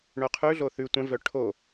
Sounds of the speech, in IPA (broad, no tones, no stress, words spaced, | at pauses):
ɳœqʰʉɮo θʉ tʷɛ̃vœ ʈʰo